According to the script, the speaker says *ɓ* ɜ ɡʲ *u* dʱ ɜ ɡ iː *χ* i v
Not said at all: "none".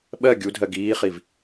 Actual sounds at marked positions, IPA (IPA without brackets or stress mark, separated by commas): ɓ, u, χ